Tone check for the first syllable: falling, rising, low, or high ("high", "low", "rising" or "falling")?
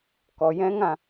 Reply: low